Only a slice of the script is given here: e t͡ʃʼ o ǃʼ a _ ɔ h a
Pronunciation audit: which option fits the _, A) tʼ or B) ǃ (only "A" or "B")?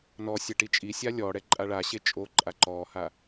B